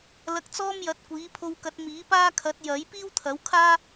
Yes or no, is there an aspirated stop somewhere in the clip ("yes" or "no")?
yes